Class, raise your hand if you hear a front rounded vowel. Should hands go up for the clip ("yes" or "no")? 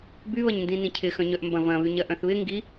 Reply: yes